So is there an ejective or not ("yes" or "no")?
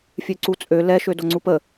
yes